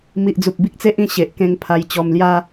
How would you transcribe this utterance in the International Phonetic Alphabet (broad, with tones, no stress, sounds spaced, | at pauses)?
m i˨ ʔ d͡z u˨ p̚ b i˦ k̚ t͡s e˦ ʔ ĩ˥˧ ɕ e˨ ʔ k ẽ˧ ŋ pʰ a˧ j t͡ɕ ɔ˧ m l j a˦